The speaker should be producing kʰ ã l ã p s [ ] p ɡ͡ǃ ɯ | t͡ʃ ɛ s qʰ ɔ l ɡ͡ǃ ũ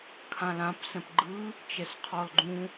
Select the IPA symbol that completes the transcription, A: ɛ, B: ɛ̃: B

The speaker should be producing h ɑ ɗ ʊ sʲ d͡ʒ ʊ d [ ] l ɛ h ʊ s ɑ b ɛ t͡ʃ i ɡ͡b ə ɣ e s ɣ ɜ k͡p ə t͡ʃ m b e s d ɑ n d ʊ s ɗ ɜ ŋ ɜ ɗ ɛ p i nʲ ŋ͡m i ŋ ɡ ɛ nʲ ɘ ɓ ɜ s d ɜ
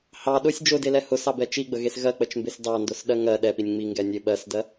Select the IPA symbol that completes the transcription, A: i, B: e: B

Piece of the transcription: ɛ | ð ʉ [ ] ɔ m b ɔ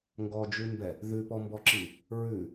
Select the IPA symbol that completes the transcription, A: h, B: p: B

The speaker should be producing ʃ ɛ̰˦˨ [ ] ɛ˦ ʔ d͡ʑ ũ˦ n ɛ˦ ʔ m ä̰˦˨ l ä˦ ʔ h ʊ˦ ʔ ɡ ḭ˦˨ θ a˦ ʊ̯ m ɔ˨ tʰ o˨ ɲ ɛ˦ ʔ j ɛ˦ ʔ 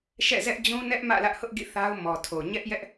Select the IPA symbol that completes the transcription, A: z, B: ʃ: A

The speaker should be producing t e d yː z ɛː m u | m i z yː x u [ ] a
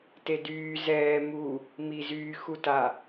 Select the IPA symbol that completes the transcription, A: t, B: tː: A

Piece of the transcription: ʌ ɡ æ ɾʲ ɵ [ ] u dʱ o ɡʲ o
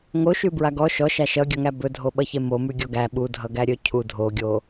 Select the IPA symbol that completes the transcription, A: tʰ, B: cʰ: B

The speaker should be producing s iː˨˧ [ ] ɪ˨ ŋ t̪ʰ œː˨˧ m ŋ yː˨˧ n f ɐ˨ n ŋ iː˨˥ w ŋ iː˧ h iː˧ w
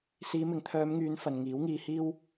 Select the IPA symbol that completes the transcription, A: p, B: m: B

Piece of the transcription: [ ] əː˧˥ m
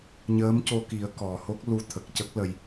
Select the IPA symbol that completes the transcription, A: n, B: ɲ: B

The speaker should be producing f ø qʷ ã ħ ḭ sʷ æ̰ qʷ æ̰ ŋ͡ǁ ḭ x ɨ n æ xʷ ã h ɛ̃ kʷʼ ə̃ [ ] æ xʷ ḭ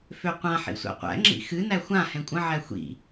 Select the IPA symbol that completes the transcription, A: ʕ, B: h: A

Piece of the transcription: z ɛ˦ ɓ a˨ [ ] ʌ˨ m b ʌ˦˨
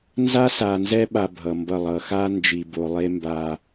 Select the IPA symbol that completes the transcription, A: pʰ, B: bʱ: B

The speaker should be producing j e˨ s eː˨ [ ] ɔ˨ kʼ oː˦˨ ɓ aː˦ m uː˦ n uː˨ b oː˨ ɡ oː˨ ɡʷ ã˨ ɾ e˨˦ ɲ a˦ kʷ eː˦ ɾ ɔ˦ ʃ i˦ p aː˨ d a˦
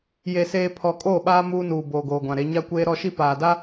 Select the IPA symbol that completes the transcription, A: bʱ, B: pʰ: B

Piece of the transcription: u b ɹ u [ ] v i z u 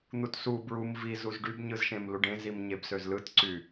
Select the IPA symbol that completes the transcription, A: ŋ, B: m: B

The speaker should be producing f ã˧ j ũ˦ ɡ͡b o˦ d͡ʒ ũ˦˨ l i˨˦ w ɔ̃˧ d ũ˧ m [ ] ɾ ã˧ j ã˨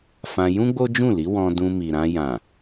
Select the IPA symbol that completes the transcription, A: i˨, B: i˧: A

